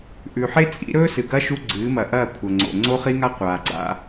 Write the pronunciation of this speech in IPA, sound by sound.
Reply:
ʔ ʉ˨ ħ e˦ t͡sʼ ḭ˨˦ ɾ ɵː˦ s ɨ˨ ɡ ɐ˦ ʃ u˦ ɡ͡ǀ ɨː˨˦ m ɐ˨ ʔ ɐː˦˨ kʷʰ ɐ˨ ŋ͡ǀ o̰˨ ŋ͡ǀ o˦ χ i˦ ŋ a˦ qʷ aː˨ ɡ͡ǀ a̰˦

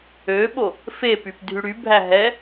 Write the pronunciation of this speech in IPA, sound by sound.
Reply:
ø ɓ o | f e p y p dʱ y ɽ y bʱ æ ɦ ɛ

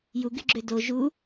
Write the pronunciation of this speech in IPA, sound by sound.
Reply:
j u ɡ y ɡ͡ǁ ø d o ʒ u

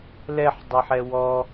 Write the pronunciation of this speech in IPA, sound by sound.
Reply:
l ɛ ħ dˤ e ħ ɛ w ɔ

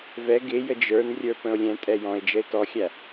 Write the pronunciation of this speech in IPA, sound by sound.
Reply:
v ɛ ɡ ɪ j ə d͡ʒ ə˞ n rʲ ə˞ p ə̃ o̯ lʲ ɛ̃ tʼ ɛ j ɔ̃ e̯ d͡ʒ ə e̯ t ɔ xʲ æ

